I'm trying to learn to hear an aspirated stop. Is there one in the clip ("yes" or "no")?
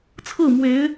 yes